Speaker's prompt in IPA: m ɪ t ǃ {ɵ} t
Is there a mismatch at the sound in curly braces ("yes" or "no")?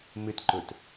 no